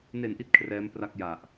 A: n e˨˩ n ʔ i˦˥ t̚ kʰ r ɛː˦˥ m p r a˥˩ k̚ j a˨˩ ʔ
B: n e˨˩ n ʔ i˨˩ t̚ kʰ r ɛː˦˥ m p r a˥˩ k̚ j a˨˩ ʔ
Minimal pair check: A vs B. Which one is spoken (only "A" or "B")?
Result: A